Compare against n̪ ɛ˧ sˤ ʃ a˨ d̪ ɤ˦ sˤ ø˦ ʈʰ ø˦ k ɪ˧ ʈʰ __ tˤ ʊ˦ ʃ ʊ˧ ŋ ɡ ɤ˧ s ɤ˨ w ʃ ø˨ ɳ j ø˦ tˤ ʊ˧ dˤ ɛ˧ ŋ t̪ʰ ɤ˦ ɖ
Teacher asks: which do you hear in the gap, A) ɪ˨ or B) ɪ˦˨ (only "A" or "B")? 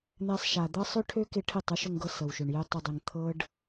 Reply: B